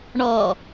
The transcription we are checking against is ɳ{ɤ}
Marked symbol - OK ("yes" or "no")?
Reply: no